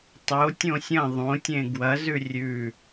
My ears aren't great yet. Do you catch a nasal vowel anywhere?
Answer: yes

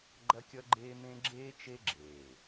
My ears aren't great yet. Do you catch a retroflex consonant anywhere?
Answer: no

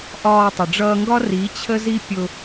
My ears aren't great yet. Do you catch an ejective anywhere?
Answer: no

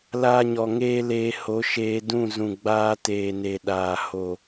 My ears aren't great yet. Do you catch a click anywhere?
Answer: no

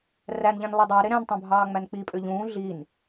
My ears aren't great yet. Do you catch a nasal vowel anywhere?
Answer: yes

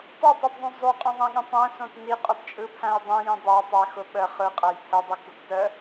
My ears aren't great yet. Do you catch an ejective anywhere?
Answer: yes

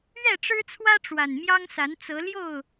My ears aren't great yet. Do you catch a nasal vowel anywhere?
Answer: no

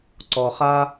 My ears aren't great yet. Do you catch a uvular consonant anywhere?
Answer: yes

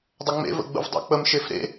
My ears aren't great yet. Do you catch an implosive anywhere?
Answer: no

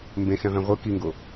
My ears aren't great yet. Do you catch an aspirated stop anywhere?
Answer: no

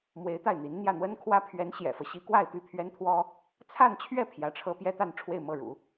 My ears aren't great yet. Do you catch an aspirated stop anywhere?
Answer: yes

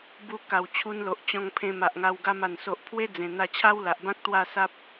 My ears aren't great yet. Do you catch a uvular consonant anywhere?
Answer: no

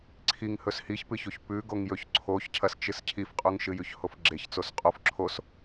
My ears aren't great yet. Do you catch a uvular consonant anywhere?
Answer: yes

